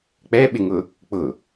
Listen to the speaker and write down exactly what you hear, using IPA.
k͡p ɛ ɓ ɪ ŋ ʊ | k͡p ʊ

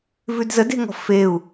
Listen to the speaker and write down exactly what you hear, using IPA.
v ʉ d z ə d e̤ ŋ ɔ̤ f e u̯

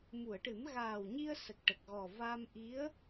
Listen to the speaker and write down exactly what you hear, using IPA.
m u˨˩˨ ə̯ ʈ ɨ˨˩˦ m ɣ aː˨˩ w ɲ i˧ ə̯ s ə˨˩ k̚ ʈ ə˨˩ k̚ ɣ ɔ˨˩ v a˧ m ʔ i˧˥ ə̯

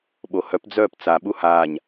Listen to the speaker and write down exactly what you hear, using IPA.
ɓ o h œ p d͡z œː p t͡s a ɓ u h aː ɲ

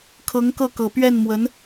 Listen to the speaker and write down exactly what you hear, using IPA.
kʰ ɤ˧˥ ŋ k ɤ˥˩ k ɤ˨˩ p ɥ ɛ˥˩ n m w ə˧˥ n

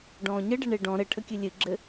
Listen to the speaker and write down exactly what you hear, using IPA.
ɖ ɔ̃ː ɲ ə ɖ ə ɳ e ɖ ɔ̃ ɾ ɘ ʈʰ ə kʲ ɨ lʲ ɨ ɡ͡ǁ ɘ

